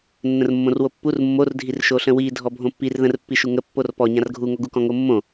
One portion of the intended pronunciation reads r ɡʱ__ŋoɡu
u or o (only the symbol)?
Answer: u